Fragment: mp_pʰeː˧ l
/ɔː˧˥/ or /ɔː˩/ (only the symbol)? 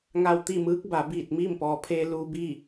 ɔː˩